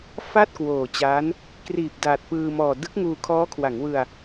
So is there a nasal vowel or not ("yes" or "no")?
no